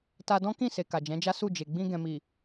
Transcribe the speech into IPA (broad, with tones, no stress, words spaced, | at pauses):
ta˧dɔ̃˦ kĩ˦˨se˨ ka˨d͡ʒɛ̃˨˦d͡ʒa˦ su˦˨d͡ʒe˨ ɡ͡bĩ˧ ɡɛ̃˨mi˨